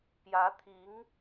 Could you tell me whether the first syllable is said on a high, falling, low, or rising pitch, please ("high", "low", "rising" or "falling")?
rising